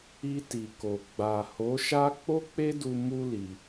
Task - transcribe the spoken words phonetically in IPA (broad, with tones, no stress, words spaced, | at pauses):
i˧ti˨ko˨ ɡ͡ba˨ho˨˦ʃa˦ k͡po˦k͡pe˦du˧ mu˧ li˧